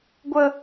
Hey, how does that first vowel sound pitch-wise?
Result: high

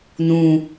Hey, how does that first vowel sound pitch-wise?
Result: low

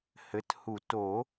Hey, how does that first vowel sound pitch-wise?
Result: rising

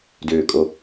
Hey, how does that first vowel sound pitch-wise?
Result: low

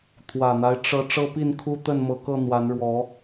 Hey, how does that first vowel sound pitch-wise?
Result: low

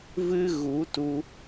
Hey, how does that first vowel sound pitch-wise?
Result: high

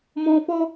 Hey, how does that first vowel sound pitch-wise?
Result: high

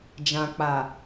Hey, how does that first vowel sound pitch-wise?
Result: low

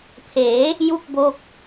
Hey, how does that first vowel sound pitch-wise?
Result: rising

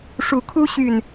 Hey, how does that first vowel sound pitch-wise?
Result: low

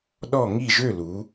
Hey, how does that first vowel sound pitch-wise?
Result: falling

